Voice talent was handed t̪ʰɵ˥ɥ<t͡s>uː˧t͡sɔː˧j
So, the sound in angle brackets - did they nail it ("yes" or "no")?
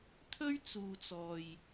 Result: yes